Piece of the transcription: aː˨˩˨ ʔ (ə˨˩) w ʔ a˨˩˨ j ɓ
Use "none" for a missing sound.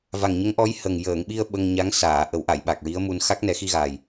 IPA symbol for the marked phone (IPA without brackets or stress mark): ə˨˩˦